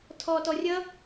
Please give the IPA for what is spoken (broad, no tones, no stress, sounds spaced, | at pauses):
tʰ ɔː t ɔ rʲ ʌ